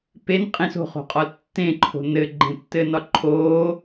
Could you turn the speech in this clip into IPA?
pen qʼẽso̤χo̤qʼɒl tːẽǃʰo̤ nɘɡ͡ǃẽtːɘnɒ ǃʰoː

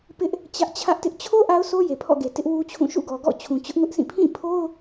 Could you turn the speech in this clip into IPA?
pɪ˦ʔ | t͡ɕä˦ʔ t͡ɕʰä˦ʔtɪ˦ʔ t͡ɕʰo˦ ʔa˦ʊ̯sʰo˦ je˨pʰɔ̰˦˨ɡe˨ tɪ˦ʔwu˦t͡ɕʰũ˦˨ ʃṵ˦˨ɡɔ˨ɡɔ̰˦˨ t͡ɕʰũ˨t͡ɕʊ˦ʔŋʊ˦ʔsʰĩ˦˨ pʰĩ˦˨pʰo˦ʊ̯

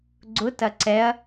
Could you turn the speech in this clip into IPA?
ɡ͡ǀʊtɐ ǀɛɐ̯

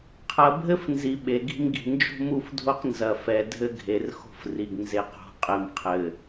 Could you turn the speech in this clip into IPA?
qʰɐ˨bʱɘ˦fnzi˨ ɓe˨ɡi̤˦mɡi̤˨ nd͡ʒo̤˦mu˦˨fdʱo˦q nzɐ˨fɛ˨ dʱɘ˦ɡʱe˨rxo̤˦fri˨ɡ nze˨qo̤˨ qʼɘ˨mqʰɘ˨

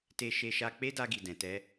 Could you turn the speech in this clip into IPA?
te˦ʃe˦ʃa˦ k͡pe˦da˧ɡi˨ dɛ̃˨tɛ˧

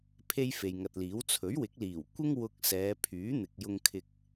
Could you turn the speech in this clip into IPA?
pʰe˥jfe˨jŋɐ˨t̚liː˨˥w t͡sʰɵ˨˥ɥwɪ˨˥k̚liː˨˩w kʷɪ˥ŋ wʊ˧k̚ sɛː˨˧pʰyː˨˥n̪ɪ˨k̚ jʊ˧ŋkʰɪ˧k̚

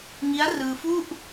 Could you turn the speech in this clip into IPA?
ŋi˦˥a̯rɯː˧ fu˥˩ʔ

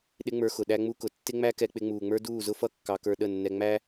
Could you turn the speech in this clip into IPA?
ɗɪ˦ŋ͡mə˞˧xʊ˨ ɗæ˦ŋ͡mu˦kʊ˨ tːɪ˦ŋ͡mæ˦ kɛ˧k͡pɪ˧ŋ͡muː˨ŋ͡mə˞˦ duː˦˨zʊ˦fʌ˦ kːɑ˧kə˞˧ɗə˦˨nːɛ˧ ŋ͡mæ˦

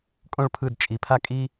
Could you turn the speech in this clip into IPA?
kʼõ˥ɭpʰɯ˦˨d t͡ʃʼi˨pʰa˥kʼi˥

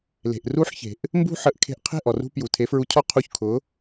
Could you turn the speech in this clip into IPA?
le̤˩ʔru˥ħçe̤˩ʔ | mbṳ˥ħə˩˥ʔkʰe̤˧ʔ qʰe̤˥˩ʔɔ˩rṳ˧ pju˩tʰe˩˥fɹu˧cʰɔ˥ qʰu˧çkʰʊ˩˥

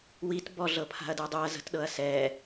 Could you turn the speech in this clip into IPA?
wit bɔɮɤ pʰa̤ɐ̯dɯdˤuɐ̯ zə̤tɗɤɐ̯sɛ

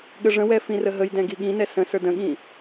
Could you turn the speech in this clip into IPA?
ɠəʐə̃wɛ fĩrəɦəjdɛ̃ ɡiɠĩnɛ sə̃sə˞d ə̃ɠĩ

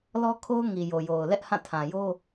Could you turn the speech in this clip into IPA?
lɔ˦kʰo˦ʊ̯ ŋi˨jo˨jo˨ʊ̯ lɛ˦ʔhã˦˨tʰã˨ jo˦

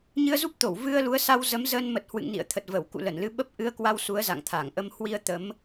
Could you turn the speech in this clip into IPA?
ɲɨ˧ə̯zu˦˥p̚t̪o˧˩w vɨ˧ə̯lu˨˦ə̯sa˧w zə˨˦mzəː˧nmə˨˩t̚ hwɨ̰˧˨ŋ nḭ˧˨ə̯t̪ʰə˨˩t̚və˧˩w kṵ˧˨lə˧˩nlɨ˨˦ɓə˦˥p̚ ʔɨ˧ə̯kwa˧w su˨˦ə̯za̰˧˨ŋt̪ʰa˧˩ŋʔə˧m hwi˧ə̯t̪ə˨˦m

